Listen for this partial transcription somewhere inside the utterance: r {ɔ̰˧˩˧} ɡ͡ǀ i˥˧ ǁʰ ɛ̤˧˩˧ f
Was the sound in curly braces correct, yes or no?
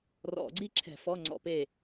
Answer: yes